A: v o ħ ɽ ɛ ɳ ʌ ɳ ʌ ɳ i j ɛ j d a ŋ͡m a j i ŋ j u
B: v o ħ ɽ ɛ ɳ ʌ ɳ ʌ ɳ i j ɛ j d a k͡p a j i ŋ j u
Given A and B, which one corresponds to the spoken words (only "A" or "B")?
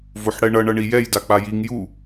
B